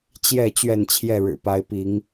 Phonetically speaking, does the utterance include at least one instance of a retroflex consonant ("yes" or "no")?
yes